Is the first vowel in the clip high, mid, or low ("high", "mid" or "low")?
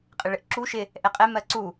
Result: high